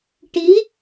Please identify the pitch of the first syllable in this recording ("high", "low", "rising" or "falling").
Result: rising